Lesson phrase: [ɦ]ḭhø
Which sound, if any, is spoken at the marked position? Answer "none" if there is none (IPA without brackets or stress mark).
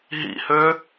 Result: ɦ